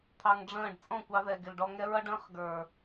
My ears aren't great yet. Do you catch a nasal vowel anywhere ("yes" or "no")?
yes